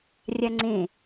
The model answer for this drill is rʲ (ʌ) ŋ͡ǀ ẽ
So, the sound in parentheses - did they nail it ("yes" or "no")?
no